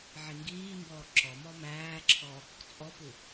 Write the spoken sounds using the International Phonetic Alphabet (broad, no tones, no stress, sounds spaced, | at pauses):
ʕ i ŋ ɡ iː m b ɔː ǁ ɔ m ɔ m æː ǁʰ ɔ | t͡sʼ ɔ p u